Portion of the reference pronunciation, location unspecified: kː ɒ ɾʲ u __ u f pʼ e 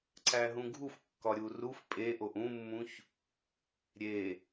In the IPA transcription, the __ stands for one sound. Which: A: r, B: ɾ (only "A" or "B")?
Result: A